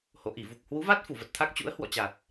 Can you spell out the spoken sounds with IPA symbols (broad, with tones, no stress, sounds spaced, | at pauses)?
h o̰˧˨ ʔ i˧˩ v u˨˩ k̚ h w u˨˦ v a˦˥ t̚ f u˧˩ v ə˨˩ t̚ t̪ʰ a˦˥ k̚ t͡ɕ ṵ˧˥ ə̯ h w ɔ̰˧˨ t͡ɕ a˨˩ t̚